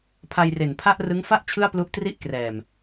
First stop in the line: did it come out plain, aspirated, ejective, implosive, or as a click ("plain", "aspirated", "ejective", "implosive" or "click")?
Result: aspirated